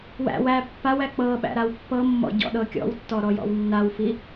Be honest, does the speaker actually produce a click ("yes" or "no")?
no